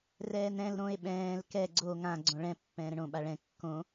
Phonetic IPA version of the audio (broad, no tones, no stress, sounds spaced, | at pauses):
r ɛː n ɛ̃ l ɾ õ e̯ ɓ ɛ̃ː l k ɛ ɡ͡ǀ o ŋ ã ɡ͡ǀ õ ɭ ɛ̃ pː ɛ̃ː ɾ ə̃ ɳ õ ɓ a ɭ ɛ̃ kː õ